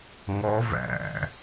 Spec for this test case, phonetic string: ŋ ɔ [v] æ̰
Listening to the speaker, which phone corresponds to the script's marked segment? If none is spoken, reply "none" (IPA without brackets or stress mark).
v